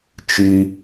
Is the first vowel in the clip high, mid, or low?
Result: high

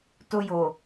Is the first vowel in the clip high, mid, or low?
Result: mid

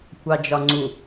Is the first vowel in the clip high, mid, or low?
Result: low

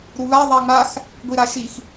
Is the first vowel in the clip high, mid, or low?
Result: high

